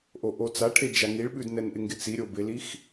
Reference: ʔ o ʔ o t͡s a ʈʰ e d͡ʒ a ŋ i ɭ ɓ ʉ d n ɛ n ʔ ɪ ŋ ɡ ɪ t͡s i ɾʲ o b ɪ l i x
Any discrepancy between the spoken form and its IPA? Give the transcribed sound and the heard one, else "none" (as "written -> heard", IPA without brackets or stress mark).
none